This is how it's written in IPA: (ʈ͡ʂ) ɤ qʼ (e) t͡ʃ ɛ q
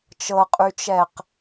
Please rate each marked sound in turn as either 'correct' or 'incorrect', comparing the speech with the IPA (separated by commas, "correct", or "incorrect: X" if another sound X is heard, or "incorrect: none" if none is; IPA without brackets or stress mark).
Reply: incorrect: t͡ʃ, incorrect: y